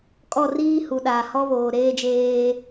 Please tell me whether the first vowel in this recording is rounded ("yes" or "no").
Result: yes